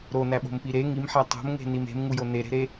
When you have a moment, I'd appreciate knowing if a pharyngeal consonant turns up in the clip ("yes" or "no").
yes